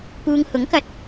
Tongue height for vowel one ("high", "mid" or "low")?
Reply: high